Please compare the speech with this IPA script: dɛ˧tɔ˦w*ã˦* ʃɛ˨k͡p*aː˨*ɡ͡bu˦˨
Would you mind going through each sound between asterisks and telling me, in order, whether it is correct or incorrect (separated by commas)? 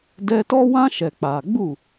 correct, correct